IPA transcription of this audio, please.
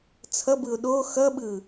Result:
t͡sʰ ʌ b ɯ ʊ̯ ɗ o x ʌ ɓ ɯ

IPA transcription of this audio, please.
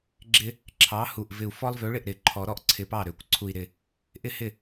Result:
ɡ͡ǁ ɪ˦ | ǁʰ ɑ˨˥ h u˨˩ ʔ v ɪ˨˩ u̯ f ɔ˦ lˠ v ø˨˥ ɭ ɪ˥˩ ʔ ɾ ɪ˨˩˦ ǃʰ ɔ˨˩˦ ɾ ɔ˥˩ ʔ ǀʰ ɪ˨˥ p ɑ˥˩ ɾ ø˨˩ kʷ ǀʰ u˨˩ i̯ ɾ ɪ˨˩ | ʔ ɪ˥˩ h ɪ˥˩

